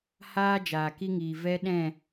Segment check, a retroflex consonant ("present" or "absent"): absent